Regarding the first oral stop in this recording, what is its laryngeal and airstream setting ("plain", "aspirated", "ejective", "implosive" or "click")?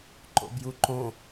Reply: click